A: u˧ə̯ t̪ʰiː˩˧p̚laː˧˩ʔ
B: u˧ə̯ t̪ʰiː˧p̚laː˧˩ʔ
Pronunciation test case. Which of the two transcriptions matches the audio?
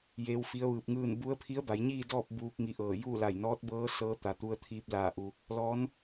B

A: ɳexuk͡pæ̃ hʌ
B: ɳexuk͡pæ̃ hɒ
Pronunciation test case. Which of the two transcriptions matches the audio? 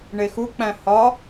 B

